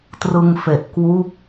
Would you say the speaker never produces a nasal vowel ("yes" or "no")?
yes